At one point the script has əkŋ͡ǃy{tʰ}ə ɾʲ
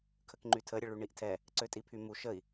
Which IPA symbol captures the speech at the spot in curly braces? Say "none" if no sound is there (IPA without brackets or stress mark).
tʰ